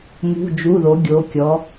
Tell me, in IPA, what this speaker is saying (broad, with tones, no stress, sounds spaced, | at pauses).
m ṳ˩˧˩ d͡ʒ u˩˧˩ ð o˩˧ ɡʲ o˩˧ kʲ ɔ˩˧